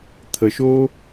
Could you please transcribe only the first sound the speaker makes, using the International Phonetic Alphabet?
t̪ʰ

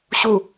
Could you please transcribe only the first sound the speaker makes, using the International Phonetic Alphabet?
ɕ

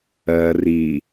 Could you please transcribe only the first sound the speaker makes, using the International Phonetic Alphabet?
ɜ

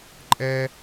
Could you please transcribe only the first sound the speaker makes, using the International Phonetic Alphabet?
ǃʼ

